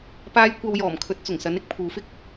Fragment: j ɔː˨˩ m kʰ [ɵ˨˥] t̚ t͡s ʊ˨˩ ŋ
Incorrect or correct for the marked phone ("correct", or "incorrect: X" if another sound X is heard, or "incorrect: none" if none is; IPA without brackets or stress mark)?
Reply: correct